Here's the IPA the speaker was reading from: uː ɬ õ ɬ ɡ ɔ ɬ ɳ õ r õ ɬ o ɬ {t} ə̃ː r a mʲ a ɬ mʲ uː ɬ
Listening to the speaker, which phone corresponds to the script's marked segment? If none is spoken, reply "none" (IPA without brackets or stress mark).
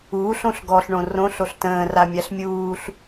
t